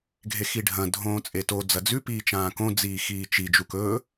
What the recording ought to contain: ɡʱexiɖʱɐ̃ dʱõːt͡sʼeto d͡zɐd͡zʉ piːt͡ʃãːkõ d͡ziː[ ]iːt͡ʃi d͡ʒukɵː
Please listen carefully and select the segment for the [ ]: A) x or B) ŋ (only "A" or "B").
A